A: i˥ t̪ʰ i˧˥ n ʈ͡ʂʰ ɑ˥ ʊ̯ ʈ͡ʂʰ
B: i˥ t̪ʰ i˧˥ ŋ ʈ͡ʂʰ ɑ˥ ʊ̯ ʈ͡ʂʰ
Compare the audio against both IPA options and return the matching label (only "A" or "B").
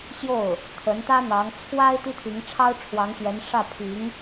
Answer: B